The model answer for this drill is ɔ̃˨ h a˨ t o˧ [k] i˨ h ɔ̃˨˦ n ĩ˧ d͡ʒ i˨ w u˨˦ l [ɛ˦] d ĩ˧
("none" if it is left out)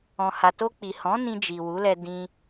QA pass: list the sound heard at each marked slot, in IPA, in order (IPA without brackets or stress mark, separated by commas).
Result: k͡p, ɛ˧